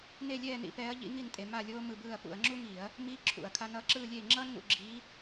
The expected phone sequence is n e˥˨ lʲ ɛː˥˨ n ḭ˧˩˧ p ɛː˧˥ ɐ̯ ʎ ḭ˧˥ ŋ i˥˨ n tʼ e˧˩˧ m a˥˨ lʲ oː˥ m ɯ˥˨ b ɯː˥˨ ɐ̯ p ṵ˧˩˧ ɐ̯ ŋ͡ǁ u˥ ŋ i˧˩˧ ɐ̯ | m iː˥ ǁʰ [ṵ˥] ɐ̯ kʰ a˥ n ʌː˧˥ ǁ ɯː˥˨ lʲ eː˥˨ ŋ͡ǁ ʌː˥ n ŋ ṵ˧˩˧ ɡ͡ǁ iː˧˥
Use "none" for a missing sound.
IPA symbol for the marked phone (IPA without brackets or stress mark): ṵ˧˩˧